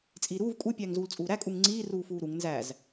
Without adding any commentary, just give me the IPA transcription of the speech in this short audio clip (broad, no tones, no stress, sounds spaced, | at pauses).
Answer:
t͡sʼ iː ɾ uː v kʼ u pʲ æː ŋ z uː l t͡sʼ uː ɾ æ kʼ u ŋ ŋ͡ǀ iː r uː f uː ɾ u ŋ n z æ z